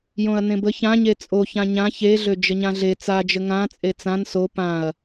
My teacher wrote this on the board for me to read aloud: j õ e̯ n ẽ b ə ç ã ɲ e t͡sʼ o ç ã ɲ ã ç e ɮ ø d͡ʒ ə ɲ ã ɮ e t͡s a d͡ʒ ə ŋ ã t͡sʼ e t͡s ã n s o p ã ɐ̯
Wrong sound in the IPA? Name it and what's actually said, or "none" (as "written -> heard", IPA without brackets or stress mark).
e̯ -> ɐ̯